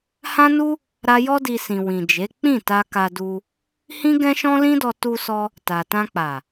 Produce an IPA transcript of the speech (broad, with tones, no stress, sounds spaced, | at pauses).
h ã˦ n u˦ | ɾ a˦ j ɔ˦ d i˧ s ĩ˨ w ĩ˨ d͡ʒ e˨˦ k͡p ĩ˦˨ t a˧ k a˧ d u˧ | h ĩ˦ ɡ ɛ̃˦ ʃ ɔ̃˦ l ĩ˦ d ɔ˧ t u˧ s ɔ˧ | t a˨ t ã˧ k͡p a˨